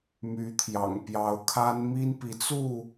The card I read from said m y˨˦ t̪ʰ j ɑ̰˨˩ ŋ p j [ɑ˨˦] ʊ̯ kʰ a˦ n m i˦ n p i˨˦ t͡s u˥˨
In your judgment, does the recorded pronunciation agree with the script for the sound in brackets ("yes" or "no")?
yes